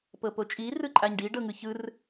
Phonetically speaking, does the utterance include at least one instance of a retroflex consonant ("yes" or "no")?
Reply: yes